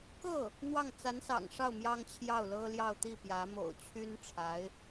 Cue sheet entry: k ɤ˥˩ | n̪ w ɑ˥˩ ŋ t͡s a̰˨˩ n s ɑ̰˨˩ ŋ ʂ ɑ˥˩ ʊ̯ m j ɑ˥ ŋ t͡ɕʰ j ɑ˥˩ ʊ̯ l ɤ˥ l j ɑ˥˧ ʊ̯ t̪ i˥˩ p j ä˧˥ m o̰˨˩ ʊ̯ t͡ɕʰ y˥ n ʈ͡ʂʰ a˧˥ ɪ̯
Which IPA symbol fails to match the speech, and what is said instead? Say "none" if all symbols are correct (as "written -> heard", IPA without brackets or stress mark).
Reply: a̰˨˩ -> a˧˥